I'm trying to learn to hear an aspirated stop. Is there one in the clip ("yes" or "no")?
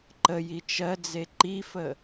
no